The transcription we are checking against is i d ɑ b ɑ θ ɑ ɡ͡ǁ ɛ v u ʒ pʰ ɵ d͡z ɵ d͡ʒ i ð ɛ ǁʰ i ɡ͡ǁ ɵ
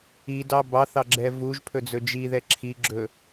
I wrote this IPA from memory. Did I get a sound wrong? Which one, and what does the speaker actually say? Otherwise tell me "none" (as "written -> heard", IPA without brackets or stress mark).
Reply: none